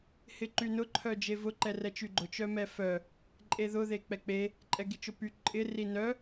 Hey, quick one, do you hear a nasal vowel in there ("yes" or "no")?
no